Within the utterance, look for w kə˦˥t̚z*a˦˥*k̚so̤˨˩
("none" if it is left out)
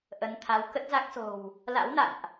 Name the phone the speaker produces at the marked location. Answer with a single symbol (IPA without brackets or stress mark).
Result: a˦˥